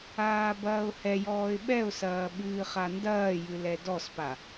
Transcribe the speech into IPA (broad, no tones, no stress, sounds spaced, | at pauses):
aː b ɐː ʊ̯ h ɛ j ɔː ɪ̯ ɓ ɛ ʊ̯ s ɐː ɓ ɨː χ a n d ɐː j ɨ l ɛ d ɔ s p a